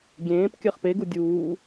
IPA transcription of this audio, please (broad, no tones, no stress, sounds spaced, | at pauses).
ɡʲ ẽː p kʲ ɜ χ p e ɡ u dʲ uː